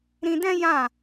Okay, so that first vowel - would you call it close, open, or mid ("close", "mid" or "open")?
close